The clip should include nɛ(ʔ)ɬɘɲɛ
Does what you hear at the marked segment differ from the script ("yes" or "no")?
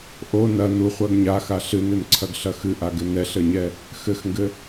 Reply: yes